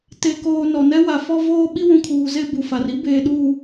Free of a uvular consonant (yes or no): yes